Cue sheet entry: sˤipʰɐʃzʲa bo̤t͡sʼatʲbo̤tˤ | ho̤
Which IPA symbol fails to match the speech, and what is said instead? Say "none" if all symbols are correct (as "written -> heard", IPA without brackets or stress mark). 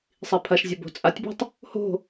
none